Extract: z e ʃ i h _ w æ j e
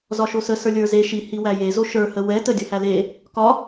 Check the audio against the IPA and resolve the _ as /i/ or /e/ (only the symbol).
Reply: i